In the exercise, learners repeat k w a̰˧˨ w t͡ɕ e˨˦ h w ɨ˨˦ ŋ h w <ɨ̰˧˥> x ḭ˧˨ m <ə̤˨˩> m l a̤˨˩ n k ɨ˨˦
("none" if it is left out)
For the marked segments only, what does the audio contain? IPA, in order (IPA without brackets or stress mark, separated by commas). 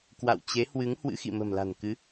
ɨ̰˧˥, ə̤˨˩